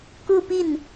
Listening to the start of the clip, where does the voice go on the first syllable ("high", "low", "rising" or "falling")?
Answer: falling